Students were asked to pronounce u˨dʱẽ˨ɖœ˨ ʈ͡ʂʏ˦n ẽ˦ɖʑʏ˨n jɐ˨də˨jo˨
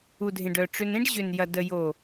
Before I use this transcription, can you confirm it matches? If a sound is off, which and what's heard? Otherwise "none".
none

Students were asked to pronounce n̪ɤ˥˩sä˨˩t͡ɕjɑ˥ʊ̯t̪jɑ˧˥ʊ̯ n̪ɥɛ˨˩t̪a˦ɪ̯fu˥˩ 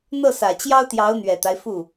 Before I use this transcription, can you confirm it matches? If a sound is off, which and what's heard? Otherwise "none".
none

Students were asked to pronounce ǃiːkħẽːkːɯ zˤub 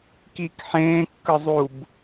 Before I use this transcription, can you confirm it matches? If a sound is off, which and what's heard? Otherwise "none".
ǃ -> k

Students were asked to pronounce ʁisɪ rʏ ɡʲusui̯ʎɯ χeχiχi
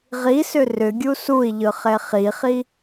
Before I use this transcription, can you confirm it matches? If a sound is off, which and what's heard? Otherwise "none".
ɪ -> ʏ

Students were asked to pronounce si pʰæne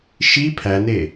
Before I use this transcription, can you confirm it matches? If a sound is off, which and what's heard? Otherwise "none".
s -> ʃ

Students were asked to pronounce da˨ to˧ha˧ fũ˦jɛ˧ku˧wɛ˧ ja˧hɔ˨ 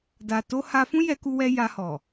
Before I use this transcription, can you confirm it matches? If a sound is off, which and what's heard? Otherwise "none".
none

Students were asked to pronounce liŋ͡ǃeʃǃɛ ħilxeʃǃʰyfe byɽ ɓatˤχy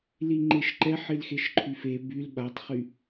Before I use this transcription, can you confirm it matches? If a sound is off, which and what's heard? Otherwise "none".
ɽ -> l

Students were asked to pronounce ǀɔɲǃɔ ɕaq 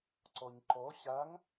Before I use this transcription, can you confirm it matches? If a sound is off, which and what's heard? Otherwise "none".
q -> ŋ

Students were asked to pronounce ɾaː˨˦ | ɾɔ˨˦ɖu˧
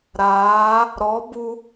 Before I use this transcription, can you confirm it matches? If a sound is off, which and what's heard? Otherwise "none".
ɖ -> b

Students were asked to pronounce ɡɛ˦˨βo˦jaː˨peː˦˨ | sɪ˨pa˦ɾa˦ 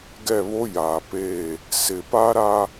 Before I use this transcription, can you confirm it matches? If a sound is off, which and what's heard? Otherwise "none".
none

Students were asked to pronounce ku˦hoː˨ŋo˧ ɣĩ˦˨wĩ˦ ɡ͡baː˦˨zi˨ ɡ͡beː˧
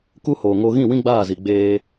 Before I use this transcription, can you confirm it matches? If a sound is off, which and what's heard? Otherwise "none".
none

